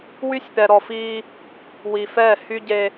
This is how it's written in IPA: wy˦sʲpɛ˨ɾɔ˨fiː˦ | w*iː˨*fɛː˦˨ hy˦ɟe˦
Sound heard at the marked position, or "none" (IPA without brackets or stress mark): i˨